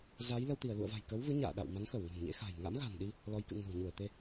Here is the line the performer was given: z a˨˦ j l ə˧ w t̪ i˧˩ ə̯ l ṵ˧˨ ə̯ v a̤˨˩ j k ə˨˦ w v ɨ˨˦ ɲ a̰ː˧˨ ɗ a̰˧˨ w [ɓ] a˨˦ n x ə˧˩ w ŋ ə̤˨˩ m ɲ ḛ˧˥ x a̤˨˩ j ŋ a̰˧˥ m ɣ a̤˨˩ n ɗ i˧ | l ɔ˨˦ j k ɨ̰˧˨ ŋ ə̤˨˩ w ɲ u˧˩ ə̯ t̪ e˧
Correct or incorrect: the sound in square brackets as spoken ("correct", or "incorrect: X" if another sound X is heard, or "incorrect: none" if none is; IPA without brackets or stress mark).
incorrect: m